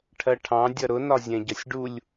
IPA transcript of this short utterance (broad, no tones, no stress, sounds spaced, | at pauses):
ʈʰ ɜ ʈʰ ɑ̃ dʲ ʌ ɾ ʊ n ɒ zʲ ɛ̃ ɟ ʌ sʲ ɖ u lʲ